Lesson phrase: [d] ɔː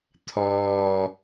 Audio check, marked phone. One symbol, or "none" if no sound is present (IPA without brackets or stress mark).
t̪ʰ